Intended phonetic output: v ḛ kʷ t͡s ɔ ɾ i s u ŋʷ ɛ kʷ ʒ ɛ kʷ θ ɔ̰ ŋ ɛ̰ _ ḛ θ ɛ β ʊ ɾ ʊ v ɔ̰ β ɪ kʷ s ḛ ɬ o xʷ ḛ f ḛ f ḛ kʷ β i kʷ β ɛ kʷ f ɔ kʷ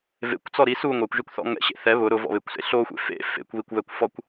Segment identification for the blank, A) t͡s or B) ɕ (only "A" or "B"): B